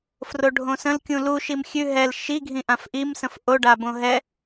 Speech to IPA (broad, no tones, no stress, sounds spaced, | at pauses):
f r o ɖʱ õ s ə̃ l kʲ ũ l u ʃ i m xʲ ʉ ɦ ɛ l ʃ i ɡʱ ĩ ʔ ã f ʔ i m s ə̃ f ʔ o ɖ a b õ ɦ ɛ